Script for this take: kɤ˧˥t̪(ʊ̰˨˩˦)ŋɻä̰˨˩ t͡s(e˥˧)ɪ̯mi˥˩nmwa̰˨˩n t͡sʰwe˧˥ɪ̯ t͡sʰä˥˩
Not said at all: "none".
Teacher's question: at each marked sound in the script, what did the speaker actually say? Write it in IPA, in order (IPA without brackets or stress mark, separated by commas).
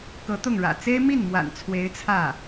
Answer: ʊ˥˩, e˥